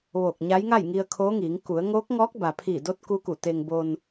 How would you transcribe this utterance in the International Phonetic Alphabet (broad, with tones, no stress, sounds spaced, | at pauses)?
ʋ oː˧˩ k̚ ɲ a˧˥ j ŋ a˥˨ j ŋ i˧ ə̯ kʰ oː˧˥ ŋ iː˩˧ ŋ k u˩˧ ə̯ ŋ oː˧˥ k̚ ŋ ɔː˧˥ k̚ b a˩ pʰ iː˧˩ d o˧˥ t̚ k u˧˥ k u˧˩ t̪ e˧ ŋ b o˧ n